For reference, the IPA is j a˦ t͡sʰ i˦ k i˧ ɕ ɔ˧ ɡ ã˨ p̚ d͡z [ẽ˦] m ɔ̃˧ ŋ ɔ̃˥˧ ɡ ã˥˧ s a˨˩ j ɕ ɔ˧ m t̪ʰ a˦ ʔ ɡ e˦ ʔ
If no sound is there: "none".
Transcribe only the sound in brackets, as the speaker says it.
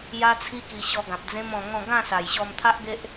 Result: ẽ˦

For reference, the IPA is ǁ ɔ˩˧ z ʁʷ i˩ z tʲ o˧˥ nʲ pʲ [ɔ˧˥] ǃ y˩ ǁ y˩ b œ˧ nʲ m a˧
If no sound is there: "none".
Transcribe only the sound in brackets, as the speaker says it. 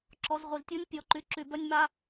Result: ɔ˩˧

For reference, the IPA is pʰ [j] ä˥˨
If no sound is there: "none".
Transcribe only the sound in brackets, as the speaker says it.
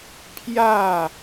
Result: j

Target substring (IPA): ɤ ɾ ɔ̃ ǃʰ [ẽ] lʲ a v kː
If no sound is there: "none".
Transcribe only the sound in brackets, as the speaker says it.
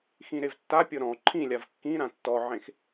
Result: ĩ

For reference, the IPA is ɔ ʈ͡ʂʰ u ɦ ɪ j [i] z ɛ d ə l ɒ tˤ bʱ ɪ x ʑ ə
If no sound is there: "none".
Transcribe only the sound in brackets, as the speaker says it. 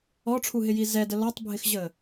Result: i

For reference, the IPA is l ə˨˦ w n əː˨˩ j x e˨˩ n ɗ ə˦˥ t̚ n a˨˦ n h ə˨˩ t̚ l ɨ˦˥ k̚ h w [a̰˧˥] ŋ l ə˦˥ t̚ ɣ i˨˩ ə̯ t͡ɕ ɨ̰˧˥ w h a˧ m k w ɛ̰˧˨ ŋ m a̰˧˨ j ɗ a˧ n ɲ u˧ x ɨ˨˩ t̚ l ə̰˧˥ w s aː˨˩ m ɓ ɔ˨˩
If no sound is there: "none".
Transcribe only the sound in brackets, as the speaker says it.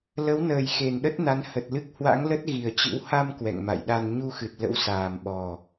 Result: a̰˧˥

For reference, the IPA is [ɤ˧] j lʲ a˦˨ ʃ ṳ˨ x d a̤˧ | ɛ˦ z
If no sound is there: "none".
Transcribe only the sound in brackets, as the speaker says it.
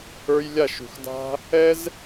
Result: ə˞˧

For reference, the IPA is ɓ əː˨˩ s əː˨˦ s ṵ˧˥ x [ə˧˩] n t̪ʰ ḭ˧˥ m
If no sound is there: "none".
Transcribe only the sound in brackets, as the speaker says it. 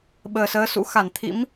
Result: a˧˩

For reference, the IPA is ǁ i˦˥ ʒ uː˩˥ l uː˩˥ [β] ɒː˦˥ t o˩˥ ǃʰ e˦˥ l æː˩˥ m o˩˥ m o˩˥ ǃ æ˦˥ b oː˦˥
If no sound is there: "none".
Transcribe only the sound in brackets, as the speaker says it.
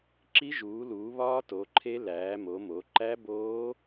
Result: β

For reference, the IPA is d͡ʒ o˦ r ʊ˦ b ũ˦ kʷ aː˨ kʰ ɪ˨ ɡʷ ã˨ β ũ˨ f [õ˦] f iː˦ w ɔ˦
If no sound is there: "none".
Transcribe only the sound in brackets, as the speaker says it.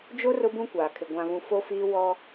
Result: o˦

